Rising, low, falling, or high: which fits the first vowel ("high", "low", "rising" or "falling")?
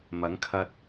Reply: rising